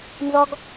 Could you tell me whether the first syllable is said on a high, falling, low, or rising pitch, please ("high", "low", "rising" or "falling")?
high